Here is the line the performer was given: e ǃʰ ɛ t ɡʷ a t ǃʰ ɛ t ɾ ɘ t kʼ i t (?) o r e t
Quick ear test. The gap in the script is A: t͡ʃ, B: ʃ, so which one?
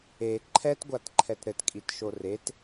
B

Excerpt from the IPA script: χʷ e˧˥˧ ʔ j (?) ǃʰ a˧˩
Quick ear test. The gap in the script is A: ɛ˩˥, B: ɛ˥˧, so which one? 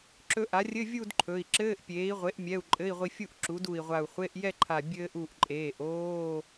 B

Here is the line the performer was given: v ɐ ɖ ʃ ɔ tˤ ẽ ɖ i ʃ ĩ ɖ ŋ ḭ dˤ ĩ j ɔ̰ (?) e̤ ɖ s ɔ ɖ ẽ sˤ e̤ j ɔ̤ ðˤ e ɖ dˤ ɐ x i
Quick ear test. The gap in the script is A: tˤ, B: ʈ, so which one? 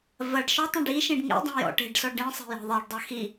B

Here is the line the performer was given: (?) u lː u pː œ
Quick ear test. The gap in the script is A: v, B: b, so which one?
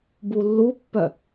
B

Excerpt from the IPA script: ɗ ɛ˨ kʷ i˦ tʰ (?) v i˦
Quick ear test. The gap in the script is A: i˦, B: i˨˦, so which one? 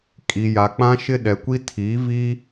B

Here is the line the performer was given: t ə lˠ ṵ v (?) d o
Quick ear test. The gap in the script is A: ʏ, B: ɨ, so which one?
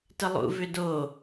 A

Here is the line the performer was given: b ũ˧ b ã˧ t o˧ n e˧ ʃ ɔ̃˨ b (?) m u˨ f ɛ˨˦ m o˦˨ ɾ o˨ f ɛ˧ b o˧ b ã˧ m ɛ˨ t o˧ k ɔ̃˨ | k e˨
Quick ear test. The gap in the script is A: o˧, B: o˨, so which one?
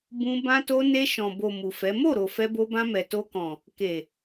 B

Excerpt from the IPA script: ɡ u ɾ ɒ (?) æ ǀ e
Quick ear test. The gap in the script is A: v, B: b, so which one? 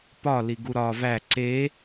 A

